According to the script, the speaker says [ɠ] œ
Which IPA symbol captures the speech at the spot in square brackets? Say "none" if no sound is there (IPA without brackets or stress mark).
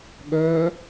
ɠ